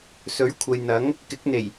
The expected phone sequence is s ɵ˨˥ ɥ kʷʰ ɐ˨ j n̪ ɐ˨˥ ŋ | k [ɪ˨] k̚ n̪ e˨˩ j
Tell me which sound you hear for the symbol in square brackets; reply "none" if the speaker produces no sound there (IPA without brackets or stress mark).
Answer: ɪ˨˥